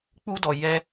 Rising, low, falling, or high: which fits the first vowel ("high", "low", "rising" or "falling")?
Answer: high